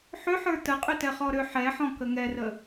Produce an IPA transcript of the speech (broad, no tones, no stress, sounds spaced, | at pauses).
ħ ʏ ħ ə˞ t ə qʼ ʏ t ɛ χ ɔ ɾ ʏ ħ ɛ ħ ɔ̃ k ə ŋ ɛ r ə